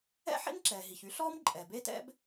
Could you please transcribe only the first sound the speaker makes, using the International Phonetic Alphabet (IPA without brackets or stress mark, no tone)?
ɛ̰